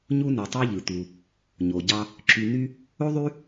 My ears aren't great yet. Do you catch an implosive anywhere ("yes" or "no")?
no